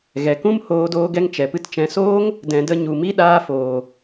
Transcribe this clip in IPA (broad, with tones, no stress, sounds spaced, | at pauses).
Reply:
ɣ ɛ˨ k ũ˦ m h oː˧ d oː˧ ɡ ɛ˧ ŋ t͡ʃ ɛ˨ p ɨ˧ t t͡ʃ ɛ̃˨ s oː˧ ŋ | d ɛ̃˨ d ə˧ ɲ u˨ m i˦ ɗ aː˧ f oː˨